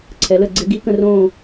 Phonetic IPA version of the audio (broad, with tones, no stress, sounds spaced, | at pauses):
ǀʰ ɛ˨˩˦ l ə˥˨ ɡ͡ǀ ɪ˧˥ ɡ i˧˥ k ə̃˥˨ r õː˥˨